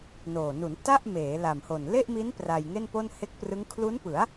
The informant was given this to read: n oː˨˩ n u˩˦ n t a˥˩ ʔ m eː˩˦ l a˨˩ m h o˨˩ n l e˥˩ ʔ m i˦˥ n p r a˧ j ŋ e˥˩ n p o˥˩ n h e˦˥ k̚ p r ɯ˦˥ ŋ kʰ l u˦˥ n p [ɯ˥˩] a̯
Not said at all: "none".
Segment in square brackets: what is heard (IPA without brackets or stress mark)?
ɯ˩˦